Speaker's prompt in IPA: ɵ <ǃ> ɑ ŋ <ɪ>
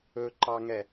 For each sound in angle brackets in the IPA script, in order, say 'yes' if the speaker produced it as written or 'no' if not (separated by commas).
yes, no